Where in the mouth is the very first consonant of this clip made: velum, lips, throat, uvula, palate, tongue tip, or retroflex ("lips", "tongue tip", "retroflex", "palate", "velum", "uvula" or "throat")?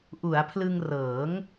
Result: throat